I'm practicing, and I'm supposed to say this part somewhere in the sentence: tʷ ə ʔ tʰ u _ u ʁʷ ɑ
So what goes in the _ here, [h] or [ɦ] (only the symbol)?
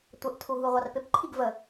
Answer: ɦ